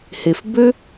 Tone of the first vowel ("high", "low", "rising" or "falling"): low